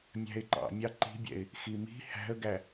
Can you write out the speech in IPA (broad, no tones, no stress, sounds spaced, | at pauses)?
mʲ æ̤ ɪ̯ ǃ ɑ̰ mʲ ɑ ǃ i̤ bʲ ɛ̰ ɪ̯ | x i m i̤ h æ̤ ə̯ ɡ æ